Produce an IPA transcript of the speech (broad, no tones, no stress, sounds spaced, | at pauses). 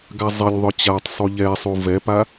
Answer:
ɡ a zˤ ɪ lʲ ðˤ ʊ t͡ɕ a tˤ sˤ u ʎ ɛ sˤ u v ɛ p a